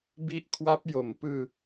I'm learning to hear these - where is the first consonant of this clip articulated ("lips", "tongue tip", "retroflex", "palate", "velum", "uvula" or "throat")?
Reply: lips